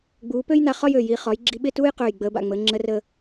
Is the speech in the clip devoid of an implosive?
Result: no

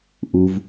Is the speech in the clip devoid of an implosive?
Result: yes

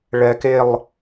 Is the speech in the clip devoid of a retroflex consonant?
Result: no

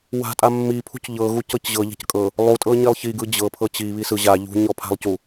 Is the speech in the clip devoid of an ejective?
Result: no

